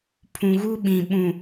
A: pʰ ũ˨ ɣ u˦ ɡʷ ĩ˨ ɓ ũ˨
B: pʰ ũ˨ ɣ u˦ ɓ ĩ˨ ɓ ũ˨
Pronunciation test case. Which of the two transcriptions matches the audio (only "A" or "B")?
B